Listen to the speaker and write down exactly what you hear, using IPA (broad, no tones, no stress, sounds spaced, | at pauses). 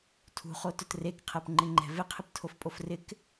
tʰ ṳ χ o t ʊ t r e k qʰ ɛ p ŋ͡ǃ ɪ ŋ͡ǃ ɛ̤ v ɪ qʰ ɪ p tʰ o f pʼ o f r ɪ k